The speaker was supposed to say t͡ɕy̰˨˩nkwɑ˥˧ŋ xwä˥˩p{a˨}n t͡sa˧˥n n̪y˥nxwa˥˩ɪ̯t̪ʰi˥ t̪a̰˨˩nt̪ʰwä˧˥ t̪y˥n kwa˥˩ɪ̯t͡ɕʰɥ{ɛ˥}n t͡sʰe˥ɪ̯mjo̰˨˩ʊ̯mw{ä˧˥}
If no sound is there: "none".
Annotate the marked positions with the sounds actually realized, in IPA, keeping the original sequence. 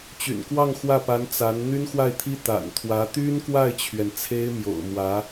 a˧˥, ɛ˩, ä˧˥

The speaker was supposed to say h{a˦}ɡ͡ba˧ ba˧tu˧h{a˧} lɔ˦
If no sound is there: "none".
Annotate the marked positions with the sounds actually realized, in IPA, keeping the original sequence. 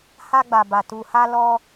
a˦, a˦

